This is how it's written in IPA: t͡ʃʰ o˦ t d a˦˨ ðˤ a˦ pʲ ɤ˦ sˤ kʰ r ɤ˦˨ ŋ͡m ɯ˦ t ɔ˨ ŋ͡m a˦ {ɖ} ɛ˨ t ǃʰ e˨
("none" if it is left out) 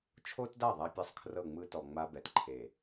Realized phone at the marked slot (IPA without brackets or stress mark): b